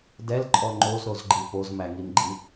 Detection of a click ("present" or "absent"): present